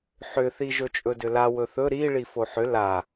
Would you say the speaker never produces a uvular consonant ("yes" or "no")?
yes